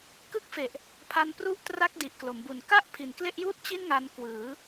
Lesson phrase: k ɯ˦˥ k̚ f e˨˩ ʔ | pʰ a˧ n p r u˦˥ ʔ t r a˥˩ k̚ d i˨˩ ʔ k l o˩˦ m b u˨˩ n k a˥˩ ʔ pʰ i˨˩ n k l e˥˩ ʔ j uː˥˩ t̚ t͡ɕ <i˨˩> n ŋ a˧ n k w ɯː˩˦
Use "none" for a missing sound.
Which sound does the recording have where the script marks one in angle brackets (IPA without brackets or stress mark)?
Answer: i˥˩